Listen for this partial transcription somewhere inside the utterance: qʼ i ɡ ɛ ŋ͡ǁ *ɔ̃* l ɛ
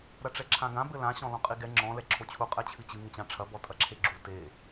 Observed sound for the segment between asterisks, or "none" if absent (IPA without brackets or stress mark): ɔ̃